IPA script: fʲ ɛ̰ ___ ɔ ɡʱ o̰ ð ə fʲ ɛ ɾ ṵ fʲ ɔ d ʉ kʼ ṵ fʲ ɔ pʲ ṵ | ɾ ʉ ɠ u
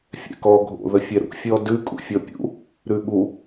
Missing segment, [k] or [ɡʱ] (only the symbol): k